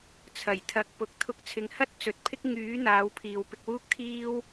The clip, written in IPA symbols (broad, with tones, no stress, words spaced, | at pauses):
t͡sʰɐ˨˩jt̪ʰɐ˨k̚ pʊ˨k̚t̪ʰʊ˧k̚t͡sʰɪ˨˧ŋhɐ˥t̚ t͡sɵ˨t̚pʰɪ˥k̚ ŋyː˨˥ n̪aː˨˧wpʰiː˨wpɪ˧k̚wuː˥k̚ t̪ʰiː˥w